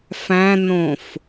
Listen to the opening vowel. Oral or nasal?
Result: nasal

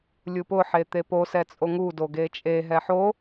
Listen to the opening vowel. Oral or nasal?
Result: oral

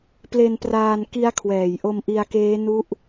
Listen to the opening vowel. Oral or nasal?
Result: oral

